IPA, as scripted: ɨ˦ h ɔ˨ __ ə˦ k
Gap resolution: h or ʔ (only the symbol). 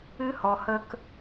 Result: h